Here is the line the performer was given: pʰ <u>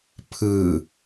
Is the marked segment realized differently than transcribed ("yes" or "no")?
yes